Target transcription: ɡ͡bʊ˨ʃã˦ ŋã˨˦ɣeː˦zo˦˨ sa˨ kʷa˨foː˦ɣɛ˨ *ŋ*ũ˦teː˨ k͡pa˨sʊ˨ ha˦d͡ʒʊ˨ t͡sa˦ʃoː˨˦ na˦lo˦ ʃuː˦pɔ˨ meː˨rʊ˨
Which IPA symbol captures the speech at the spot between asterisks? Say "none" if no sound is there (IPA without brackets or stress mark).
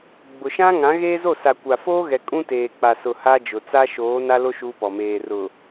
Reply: kʼ